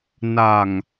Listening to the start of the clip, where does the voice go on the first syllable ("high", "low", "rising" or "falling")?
low